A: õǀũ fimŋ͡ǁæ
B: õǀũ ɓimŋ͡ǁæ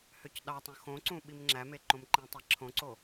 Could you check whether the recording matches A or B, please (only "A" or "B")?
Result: B